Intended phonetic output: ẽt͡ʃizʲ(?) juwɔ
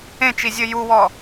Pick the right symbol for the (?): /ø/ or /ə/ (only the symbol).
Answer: ə